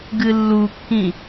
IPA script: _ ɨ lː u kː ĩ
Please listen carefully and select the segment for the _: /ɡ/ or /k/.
ɡ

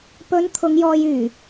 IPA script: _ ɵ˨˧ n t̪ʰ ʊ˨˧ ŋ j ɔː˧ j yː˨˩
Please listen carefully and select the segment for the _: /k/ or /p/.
p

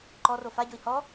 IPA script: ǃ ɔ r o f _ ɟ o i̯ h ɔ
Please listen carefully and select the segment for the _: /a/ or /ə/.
a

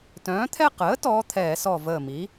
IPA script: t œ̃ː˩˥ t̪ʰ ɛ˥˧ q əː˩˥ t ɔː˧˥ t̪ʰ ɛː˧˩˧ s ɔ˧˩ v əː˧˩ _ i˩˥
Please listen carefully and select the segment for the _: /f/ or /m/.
m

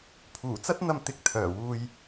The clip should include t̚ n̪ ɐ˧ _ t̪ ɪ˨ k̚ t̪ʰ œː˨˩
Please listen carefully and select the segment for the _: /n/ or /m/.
m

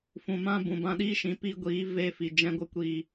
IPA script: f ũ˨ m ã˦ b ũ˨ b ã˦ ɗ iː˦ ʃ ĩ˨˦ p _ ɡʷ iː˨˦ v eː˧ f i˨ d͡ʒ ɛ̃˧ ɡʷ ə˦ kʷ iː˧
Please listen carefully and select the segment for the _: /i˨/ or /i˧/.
i˧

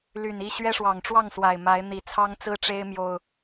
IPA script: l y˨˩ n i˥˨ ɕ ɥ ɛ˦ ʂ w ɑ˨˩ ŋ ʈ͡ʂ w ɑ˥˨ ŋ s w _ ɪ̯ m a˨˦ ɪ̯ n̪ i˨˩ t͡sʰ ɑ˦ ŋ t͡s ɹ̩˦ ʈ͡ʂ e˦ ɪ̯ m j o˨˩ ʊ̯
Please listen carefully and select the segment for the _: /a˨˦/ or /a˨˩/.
a˨˩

